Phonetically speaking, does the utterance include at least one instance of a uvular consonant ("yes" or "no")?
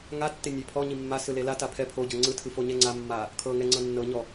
no